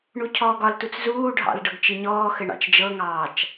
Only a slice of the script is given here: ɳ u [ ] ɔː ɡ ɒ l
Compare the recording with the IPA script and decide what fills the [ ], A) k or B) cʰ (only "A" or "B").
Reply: B